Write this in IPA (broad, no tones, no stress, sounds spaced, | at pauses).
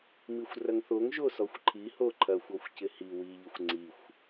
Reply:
m i xʷ r ɐ ŋ θ o ŋ ʒ o s ɔ xʷ ǃʰ i h o ǃʰ ɐ xʷ ɔ xʷ c ɪ h i w i ʎ ɪ xʷ ŋ͡ǀ i xʷ